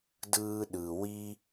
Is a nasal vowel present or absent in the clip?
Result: absent